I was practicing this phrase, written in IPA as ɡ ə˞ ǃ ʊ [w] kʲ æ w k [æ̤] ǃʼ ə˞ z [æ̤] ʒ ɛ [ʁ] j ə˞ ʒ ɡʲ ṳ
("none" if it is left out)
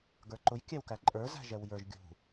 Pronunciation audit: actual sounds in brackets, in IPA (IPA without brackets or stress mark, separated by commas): j, æ, æ̤, w